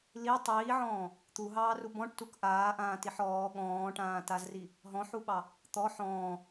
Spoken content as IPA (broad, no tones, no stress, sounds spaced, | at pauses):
l i tˤ iː ʕ ɔ̃ː | t̪ u ɦ ɑː r u b ɔ̃ ʈ t u k ʔ aː ʔ ãː t i ħ ɔː ɠ ɔ̃ː ʈ ãː t a z r i | ɦ ɔ̃ ħ u ɓ ɑ | t̪ ɔ ħ ɔ̃ː